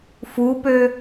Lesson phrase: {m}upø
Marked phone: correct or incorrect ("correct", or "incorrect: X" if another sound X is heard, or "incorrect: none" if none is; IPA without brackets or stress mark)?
incorrect: f